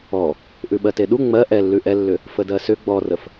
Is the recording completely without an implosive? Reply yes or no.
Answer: no